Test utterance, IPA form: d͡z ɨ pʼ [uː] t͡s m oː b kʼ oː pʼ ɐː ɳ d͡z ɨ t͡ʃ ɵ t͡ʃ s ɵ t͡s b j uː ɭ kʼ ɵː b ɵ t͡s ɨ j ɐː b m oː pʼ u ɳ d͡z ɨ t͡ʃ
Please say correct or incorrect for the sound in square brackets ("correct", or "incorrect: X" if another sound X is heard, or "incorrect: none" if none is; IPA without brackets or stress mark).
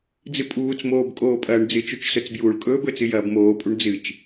correct